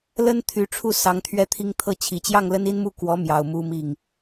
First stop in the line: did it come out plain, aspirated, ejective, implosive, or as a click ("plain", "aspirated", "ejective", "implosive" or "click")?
aspirated